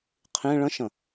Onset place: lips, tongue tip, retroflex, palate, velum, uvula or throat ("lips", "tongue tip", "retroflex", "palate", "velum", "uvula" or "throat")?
uvula